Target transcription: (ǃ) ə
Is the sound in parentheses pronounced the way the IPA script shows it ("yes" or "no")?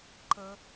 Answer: yes